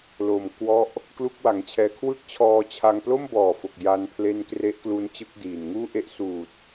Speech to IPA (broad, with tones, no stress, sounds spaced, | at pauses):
l o˨˩ m k w ɔ˦˥ ʔ | k l u˥˩ k̚ w a˩˦ ŋ t͡ɕʰ ɛː˧ kʰ w ɯ˥˩ k̚ t͡ɕʰ ɔː˧ t͡ɕʰ a˧ ŋ p l o˥˩ m b ɔː˨˩ f o˨˩ k̚ j a˧ n pʰ l e˦˥ n k r e˦˥ ʔ k l u˦˥ n t͡ɕ ɯ˦˥ k̚ d iː˨˩ n ŋ uː˥˩ ʔ e˦˥ ʔ s uː˨˩ t̚